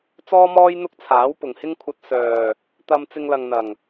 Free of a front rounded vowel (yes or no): no